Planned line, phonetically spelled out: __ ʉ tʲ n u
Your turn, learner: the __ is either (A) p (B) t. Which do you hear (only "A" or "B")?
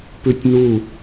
A